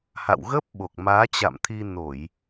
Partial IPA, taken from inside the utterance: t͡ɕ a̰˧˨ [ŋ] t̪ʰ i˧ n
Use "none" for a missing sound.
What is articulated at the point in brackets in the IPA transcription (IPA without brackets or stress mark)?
m